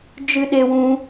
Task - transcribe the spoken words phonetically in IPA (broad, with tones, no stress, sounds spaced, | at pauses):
d͡ʒ ɨ˦ ɗ e˦ w ũ˦